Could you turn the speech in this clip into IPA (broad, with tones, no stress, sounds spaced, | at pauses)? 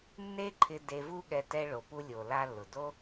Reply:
nː e˥ ǃʰ ɪ˧ d e˧ v u˥ ɠ ɛ˧ t ɛ˧ ɭ o˩ p u˧ lʲ o˩ l a˧ lː ʊ˩ d o˥